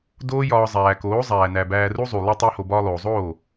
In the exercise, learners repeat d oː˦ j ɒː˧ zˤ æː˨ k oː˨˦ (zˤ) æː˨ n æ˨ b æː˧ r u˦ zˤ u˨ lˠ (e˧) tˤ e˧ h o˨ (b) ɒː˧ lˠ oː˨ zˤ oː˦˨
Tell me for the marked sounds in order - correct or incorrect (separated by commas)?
correct, correct, correct